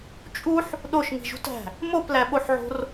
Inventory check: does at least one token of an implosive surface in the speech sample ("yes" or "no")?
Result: yes